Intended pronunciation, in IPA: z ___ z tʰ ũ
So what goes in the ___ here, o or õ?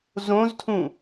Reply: õ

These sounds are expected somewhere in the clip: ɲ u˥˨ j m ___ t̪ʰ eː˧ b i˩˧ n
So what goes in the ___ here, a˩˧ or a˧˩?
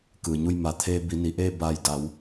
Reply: a˩˧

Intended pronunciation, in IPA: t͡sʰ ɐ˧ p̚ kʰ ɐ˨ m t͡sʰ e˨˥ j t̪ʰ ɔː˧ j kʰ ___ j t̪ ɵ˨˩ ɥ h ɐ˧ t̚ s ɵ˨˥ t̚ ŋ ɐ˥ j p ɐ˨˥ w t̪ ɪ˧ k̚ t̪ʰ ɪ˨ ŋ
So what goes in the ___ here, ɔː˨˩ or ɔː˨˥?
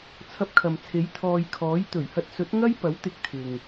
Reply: ɔː˨˥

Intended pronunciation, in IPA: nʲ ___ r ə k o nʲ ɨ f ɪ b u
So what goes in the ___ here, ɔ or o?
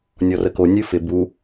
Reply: ɔ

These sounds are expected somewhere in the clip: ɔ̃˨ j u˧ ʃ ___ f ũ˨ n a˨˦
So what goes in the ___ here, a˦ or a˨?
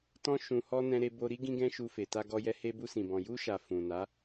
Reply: a˨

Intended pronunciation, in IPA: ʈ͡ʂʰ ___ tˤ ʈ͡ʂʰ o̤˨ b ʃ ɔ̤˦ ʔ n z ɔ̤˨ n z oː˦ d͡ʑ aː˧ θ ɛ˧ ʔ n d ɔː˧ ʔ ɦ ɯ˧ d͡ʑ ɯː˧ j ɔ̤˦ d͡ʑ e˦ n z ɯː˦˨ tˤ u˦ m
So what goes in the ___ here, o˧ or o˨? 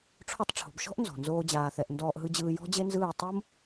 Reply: o˧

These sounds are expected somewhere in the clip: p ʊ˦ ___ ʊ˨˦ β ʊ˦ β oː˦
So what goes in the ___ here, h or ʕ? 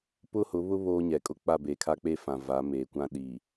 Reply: h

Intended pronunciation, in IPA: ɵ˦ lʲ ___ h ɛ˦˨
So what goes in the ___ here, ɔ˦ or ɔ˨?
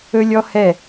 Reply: ɔ˦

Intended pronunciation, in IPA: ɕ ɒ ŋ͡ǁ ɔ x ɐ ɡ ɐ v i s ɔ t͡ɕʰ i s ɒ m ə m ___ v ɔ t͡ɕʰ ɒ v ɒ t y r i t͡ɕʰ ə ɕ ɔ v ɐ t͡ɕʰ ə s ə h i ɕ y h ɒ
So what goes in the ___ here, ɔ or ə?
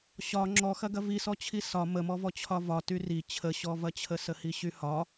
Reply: ɔ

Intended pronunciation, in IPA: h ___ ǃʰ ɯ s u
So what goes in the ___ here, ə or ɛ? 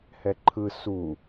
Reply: ɛ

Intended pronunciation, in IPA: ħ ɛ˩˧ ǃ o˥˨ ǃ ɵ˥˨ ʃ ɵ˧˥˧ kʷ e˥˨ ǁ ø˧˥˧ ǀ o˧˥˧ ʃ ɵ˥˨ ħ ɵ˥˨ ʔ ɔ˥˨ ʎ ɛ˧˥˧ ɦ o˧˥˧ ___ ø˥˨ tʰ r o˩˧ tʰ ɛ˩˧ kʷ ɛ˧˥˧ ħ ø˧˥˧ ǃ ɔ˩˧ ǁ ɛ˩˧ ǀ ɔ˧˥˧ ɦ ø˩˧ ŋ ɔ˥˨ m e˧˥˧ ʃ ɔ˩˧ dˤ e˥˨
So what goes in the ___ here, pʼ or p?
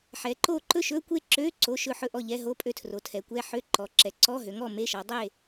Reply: pʼ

